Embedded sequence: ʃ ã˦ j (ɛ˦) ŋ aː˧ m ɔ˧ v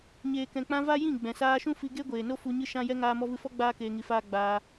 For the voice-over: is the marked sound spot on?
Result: yes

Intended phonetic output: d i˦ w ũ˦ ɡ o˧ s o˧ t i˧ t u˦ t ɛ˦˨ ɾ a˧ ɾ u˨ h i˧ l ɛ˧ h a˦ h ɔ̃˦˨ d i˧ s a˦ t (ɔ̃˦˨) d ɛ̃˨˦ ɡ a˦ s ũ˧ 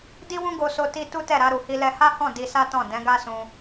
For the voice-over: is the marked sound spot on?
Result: yes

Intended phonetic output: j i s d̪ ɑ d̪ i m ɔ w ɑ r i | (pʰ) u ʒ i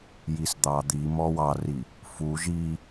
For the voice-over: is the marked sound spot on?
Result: no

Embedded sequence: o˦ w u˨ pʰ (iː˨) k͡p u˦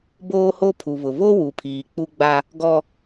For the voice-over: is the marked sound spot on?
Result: yes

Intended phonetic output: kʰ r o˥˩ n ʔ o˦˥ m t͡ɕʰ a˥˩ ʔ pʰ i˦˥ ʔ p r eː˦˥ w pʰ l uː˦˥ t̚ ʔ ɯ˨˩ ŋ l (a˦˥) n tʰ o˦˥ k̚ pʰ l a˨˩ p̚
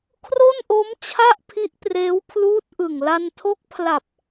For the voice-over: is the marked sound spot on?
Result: no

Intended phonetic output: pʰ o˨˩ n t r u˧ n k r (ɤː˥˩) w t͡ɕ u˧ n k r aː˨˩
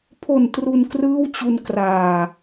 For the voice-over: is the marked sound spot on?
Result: no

